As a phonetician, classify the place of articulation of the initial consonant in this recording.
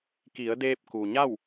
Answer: velar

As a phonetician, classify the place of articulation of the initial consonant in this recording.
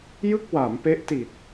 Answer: palatal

